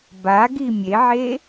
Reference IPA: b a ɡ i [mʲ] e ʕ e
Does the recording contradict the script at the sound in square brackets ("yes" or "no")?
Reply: no